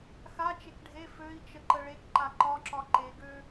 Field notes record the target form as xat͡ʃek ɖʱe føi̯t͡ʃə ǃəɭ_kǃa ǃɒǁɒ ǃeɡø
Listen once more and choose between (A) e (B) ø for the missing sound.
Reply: A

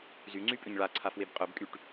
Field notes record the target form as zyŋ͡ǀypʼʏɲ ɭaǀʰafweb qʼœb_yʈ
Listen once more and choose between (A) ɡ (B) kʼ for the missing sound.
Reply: B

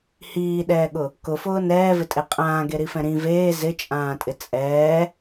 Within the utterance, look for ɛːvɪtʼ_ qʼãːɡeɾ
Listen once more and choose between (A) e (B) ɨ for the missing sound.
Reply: A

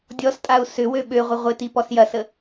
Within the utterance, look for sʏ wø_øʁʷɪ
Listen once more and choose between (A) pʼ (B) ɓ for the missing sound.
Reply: B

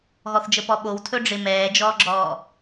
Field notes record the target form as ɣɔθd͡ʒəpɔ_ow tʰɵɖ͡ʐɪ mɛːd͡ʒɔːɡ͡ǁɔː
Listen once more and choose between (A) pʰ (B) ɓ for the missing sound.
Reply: B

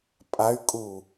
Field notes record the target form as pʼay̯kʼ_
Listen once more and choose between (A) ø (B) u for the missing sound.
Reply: B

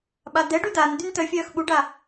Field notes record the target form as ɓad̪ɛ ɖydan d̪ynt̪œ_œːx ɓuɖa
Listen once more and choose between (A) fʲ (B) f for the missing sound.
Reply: A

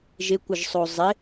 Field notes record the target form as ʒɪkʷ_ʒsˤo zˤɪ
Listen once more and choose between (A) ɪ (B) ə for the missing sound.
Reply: B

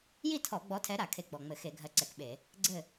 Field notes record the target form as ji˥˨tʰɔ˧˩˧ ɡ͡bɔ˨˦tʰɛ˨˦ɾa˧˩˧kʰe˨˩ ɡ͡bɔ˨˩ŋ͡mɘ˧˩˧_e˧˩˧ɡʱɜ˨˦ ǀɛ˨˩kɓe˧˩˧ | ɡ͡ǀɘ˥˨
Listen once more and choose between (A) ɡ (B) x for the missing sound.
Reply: B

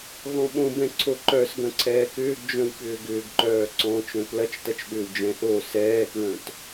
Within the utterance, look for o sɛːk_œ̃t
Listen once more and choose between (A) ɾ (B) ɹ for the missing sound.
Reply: B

